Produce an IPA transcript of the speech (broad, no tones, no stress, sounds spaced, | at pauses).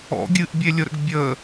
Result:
ɔ̰ ɡʲ ɨ ʔ bʲ e lʲ ʊ ɾ ə̰ ɡ bʲ ə